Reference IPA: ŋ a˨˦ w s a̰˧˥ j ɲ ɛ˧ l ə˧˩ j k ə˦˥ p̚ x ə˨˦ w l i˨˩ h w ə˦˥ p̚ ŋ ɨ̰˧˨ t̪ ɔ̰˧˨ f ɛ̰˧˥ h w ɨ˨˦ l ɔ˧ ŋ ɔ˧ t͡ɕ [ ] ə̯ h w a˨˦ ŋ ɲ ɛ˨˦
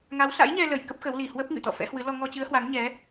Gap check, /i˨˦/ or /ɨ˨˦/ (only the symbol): ɨ˨˦